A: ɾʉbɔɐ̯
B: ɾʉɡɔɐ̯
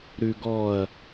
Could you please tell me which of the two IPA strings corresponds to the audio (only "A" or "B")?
B